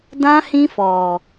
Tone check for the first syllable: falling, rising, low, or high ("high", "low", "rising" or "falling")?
high